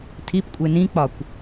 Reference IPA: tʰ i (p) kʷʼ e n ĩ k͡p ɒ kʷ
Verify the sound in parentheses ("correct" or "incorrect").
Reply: correct